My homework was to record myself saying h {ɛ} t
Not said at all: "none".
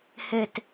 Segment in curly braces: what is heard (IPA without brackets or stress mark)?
ɘ